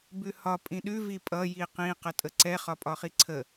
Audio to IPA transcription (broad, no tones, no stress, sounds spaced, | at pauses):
b ʉ h ɒ pʼ ĩ ɗ ʉ v i pʼ ʌ j i q ĩ q ə tʼ ə ǀ ɛ χ ɒ pʼ ɒ χ i ǀʰ ə